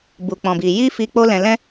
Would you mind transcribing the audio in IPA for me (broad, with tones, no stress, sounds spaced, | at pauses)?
b u˨ k͡p ɔ̃˨ b i˨ j i˧ f i˨ k͡p o˧ l ɛ̃˨ l ɛ̃˧